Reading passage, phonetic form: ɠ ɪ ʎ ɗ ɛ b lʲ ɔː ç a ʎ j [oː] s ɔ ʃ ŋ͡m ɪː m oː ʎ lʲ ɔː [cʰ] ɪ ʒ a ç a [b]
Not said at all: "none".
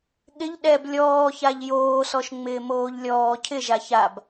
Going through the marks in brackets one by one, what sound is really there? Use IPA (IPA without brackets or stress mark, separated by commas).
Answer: oː, cʰ, b